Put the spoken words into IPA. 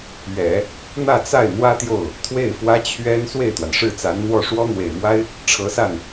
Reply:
ɥ ɛ˨˩˦ | n̪ ä˥˧ t͡s a˥˩ ɪ̯ n̪ w ä˥ t̪ j o˥˩ ʊ̯ | t̪ʰ w e˥˩ ɪ̯ f w ä˥ t͡ɕʰ ɥ ɛ˥ n s w e˥˩ ɪ̯ t̪ w a˩ n ʂ ɻ̩˥˩ t͡s a˧˥ n n̪ w ɔ˥˩ ʂ w ɔ˥ n̪ w e˨˩ ɪ̯ m w a˥ ɪ̯ | ʈ͡ʂʰ ɤ˧˥ s a˥˩ n

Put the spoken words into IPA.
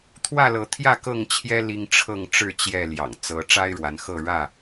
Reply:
t̪ʰ w ä˥˨ l ɤ˨˦ t̪ʰ j ä˥˨ k ɤ˥˨ ŋ t͡ɕʰ j ɛ˦ l i˦ ŋ ʈ͡ʂʰ ɤ˥˨ ŋ ʈ͡ʂ ɻ̩˥˨ t͡ɕ j ɛ˥˨ l j ɑ̰˨˩ ŋ t͡s ɤ˨˦ ʈ͡ʂ a˦ ɪ̯ ɻ w a˨˦ n x ɤ˥˨ ɻ ä˥˨

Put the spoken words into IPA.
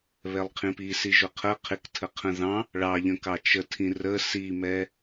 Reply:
β ɛ lˠ qʰ ĩ p i s i ʒ ʊ qʰ ə qʰ ɪ k tʰ ə qʰ ə̃ ð ɑ̃ | ɭ ɑ ʎ ə̃ k ɑ t͡ʃ ə tʰ ĩ r ə s i m ɛ

